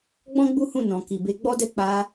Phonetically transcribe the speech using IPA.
ɡ͡b ɔ̃˦ ɡ͡b u˦ h ũ˦˨ n ɔ̃˨ k i˨ b e˧ ɡ͡b ɔ˦ d ɛ˦ k͡p a˧

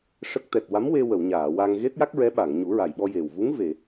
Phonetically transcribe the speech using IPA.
ʂ ə˦˥ k̚ t̪ ɛ˨˩ t̚ w a˧˥ m w e˧ w ə˨˩˨ w ɲ aː˨˩˨ w a˧ ŋ ɣ e˦˥ t̚ j a˦˥ k̚ ɹ ɛ˧˥ ɓ a˨˩˨ ŋ ɲ u˨˩˦ ɹ a˨˩ j ɓ ɔ˧ j e˨˩ w v u˧˥ ŋ v e˨˩˨

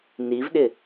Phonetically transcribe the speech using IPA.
n i v ɗ ɪ

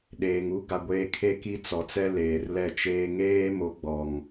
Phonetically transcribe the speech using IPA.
ɗ eː˨ ŋ u˦ ɡ a˨ ɡʷ eː˨ kʰ e˦ k i˦ t͡s ɔ˨˦ t͡s ɛ˦ l eː˨ r l ɛ˦˨ t͡ʃ eː˦ ŋ eː˦ m o˨˦ ɡ͡b ɔ˨ ŋ

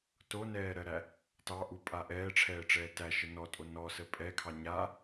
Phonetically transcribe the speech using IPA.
t o n ɛː ɾ ɜ ɾ æ | t ɑ ʔ u pʼ a ʔ ɛː ʈ͡ʂʰ ɛː ʈ͡ʂ ɛː t æ ʃ ə n ɔ tʼ o n ɔ s ə pʼ ɛ kʰ ɑ ɲ a

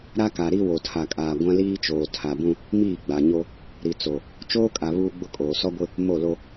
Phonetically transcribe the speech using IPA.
ɾ a˦ k a˨ ɾ i˦ w o˨ tʰ a˨ kʼ aː˨ ɡʷ ã˦ l iː˦ t͡ʃ oː˨ tʰ a˨ b ũ˦ | m iː˦˨ ɡ͡b a˨ ɲ o˦ | ɾ i˨ t͡s o˨ | t͡ʃ oː˦ kʼ a˨ β uː˦ ɡ͡b ʊ˦ kʼ oː˨ s ɔ˦ ɡʷ ɪ˦ | m o˦˨ l o˦

